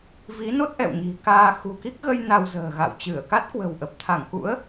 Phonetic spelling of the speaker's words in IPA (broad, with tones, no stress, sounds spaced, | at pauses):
v i˨˦ n o˦˥ t̚ ʔ ɛ̰˧˨ w ɲ i̤˨˩ k aː˧ x ṳ˨˩ k i˦˥ k̚ ɣ ə˧ j n a˧ w z ə̤ː˨˩ ɣ a̰˧˨ w t͡ɕ ɨ˧˩ ə̯ k a˦˥ t̚ k w ə̤˨˩ w ʔ ə˨˩ p̚ t̪ʰ a˧˩ ŋ k ṵ˧˥ ə̯